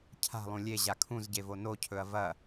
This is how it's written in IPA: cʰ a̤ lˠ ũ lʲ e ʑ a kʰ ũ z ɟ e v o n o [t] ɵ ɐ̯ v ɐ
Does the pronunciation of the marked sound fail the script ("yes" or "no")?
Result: yes